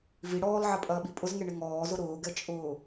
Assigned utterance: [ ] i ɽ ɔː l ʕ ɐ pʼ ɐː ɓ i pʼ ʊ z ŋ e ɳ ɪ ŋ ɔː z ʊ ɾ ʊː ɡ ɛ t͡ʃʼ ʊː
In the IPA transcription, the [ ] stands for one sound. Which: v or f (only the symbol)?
v